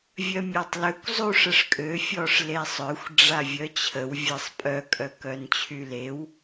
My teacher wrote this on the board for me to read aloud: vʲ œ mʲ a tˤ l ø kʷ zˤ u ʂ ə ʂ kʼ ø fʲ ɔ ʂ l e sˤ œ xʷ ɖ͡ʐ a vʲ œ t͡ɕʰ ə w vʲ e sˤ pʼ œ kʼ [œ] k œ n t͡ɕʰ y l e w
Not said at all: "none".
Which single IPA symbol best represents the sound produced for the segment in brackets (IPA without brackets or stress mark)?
œ